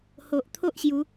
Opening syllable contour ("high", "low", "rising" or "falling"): low